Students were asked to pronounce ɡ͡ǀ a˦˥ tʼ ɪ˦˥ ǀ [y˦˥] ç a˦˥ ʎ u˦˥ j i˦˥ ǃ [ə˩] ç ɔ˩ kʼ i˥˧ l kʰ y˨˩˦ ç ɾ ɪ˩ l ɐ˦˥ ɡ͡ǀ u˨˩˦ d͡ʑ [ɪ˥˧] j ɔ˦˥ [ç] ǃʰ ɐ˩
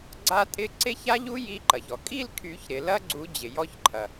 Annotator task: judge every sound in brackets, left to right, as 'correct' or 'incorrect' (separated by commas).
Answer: incorrect, incorrect, incorrect, correct